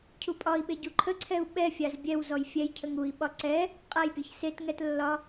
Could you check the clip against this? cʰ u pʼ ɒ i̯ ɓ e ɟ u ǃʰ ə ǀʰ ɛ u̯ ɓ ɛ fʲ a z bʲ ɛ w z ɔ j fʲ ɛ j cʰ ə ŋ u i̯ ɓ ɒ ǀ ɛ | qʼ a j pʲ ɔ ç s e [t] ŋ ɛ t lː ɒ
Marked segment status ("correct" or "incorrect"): correct